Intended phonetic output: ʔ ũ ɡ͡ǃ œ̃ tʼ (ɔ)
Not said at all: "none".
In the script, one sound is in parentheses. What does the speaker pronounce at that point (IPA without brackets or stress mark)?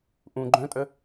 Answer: ə